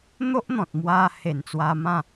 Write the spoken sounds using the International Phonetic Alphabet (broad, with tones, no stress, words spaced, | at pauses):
n̪o˦ʔn̪ɔ̃˨t̚mwa˧ he˨˩nt͡swa˧mã˥˧